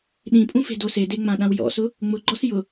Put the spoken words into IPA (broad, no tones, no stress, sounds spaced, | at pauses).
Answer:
ɗ ĩ pʼ ũ f e̤ d o s e d e ŋ͡m ã ɗ ã w j ɔ̰ s ʊ | ŋ͡m ʊ ɡ͡ǃ ɔ s j ʊ